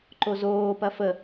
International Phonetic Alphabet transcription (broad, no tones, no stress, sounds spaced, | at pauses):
ǃ o z oː p ɐ f ə